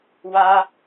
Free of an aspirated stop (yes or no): yes